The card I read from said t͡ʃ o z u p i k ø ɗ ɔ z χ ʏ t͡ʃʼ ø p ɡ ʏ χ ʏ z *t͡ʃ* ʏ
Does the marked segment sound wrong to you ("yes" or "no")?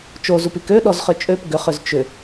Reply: no